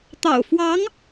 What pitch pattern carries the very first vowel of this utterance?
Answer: low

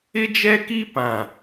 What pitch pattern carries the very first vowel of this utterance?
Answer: high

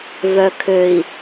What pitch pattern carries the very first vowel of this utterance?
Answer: low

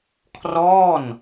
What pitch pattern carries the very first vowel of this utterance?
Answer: falling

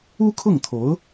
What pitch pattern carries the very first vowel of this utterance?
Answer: high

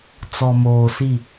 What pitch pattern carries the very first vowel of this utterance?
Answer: low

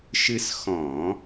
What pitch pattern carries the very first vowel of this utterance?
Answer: high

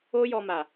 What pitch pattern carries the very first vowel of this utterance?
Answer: high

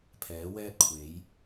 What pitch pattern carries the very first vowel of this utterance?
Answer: rising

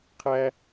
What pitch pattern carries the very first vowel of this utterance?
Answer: high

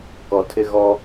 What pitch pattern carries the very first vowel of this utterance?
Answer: low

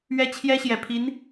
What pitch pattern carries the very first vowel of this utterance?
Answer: high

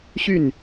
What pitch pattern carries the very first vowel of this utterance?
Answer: falling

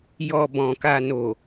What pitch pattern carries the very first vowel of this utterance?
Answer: low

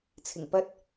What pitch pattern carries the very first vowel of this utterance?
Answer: low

